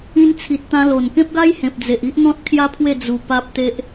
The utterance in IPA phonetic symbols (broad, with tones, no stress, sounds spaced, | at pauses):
ĩ˧ n t͡sʰ i˨ t̚ t̪ ã˧ l o˨˩ n k ẽ˦ p̚ ɡ a˦ j h ẽ˨ p̚ d͡z e˨ ʔ i˦ ʔ n̪ ɔ̃˦ t̚ kʰ j a˦ pʰ w e˥˧ d͡z u˧ p a˦ p̚ t̪ e˦ ʔ